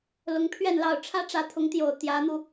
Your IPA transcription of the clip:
lʊ˧˥ŋpʰɥɛ˥˧nlɑ˥˩ʊ̯ ʈ͡ʂʰä˥ʈ͡ʂä˧˥t̪ʰʊ˧˥ŋt̪jo˨˩ʊ̯ t̪jä˧˥n̪u˧

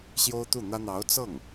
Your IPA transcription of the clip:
ɕjo˥ʊ̯t̪u˥˩n̪ä˥ n̪ɑ˧˥ʊ̯ t͡sɤ˥˩ŋ

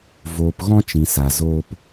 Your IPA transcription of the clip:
voː˨p ɣɔ̃˧ t͡ʃĩ˨sa˨ zoː˧p

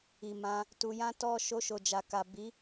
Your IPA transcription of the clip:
i˨mã˧ | tu˧jã˦tɔ˦ ʃo˧ʃo˨d͡ʒa˨ka˨ bi˨˦

